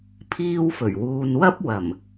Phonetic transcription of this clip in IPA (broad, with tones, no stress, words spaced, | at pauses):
pʰiː˧wfɵ˨˩ɥ wuː˨nwɐ˥p̚ wɐ˨˩m